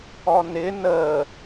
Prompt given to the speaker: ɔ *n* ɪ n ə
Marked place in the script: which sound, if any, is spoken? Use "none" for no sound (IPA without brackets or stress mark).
n